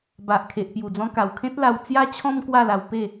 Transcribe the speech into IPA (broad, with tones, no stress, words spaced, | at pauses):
ba˨ʔkʰe˨ʔ pju˨˩d͡zɔ̃˧ka˨˩wkʰẽ˦t̚ la˧wt͡sja˦t͡ɕʰɔ̃˦m kwa˥˧la˧wpe˥˧